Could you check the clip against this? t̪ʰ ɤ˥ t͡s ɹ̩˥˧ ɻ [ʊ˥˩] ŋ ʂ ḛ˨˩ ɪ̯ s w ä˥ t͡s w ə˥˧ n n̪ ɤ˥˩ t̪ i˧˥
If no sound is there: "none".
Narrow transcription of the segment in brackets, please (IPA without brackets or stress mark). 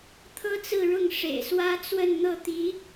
ʊ˥˩